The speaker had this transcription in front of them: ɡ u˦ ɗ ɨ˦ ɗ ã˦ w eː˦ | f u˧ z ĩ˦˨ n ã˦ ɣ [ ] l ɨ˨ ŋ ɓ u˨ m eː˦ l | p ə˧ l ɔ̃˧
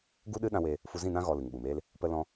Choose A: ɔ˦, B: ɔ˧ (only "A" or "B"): B